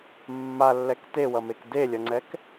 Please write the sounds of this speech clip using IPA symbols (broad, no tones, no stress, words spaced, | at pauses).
mːalːɛk tewʌmek delʲʌŋ͡ǀɛk